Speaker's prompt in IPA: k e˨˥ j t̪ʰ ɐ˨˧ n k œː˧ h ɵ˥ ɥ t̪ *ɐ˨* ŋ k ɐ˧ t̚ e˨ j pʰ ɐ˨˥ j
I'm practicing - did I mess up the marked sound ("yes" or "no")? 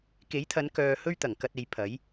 yes